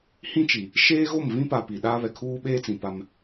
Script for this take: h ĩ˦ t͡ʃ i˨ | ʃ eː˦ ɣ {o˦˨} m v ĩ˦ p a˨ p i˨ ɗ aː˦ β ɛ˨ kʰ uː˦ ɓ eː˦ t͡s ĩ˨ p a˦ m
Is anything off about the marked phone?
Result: no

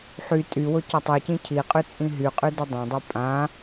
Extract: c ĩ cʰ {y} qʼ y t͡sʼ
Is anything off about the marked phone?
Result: yes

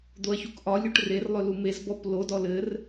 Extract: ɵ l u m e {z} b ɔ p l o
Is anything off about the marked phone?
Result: no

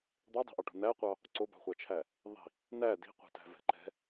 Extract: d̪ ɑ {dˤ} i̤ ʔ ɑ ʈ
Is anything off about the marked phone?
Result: no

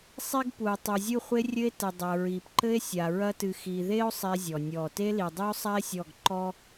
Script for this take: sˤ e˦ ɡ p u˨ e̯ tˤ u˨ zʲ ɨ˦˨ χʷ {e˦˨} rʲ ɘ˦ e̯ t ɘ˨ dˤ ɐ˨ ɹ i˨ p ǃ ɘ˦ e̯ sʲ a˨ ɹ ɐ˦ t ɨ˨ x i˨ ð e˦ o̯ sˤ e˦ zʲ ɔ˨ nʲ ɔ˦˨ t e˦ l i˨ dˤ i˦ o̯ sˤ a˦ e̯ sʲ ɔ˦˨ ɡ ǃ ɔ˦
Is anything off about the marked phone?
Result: yes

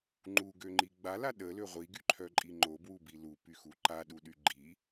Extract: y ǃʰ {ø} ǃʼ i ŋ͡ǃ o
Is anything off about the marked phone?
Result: yes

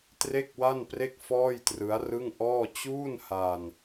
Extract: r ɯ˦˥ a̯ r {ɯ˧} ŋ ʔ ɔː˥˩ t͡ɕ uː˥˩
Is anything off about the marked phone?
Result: yes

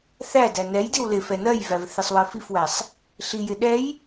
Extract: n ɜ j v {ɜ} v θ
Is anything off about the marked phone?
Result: yes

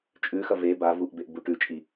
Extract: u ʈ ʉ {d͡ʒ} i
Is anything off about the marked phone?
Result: yes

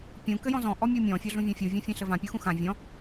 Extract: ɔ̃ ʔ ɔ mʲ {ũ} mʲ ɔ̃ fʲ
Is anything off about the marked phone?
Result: yes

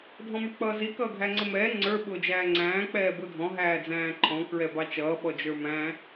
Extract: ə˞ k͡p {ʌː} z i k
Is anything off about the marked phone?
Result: no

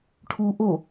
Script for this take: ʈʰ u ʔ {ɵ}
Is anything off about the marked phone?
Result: yes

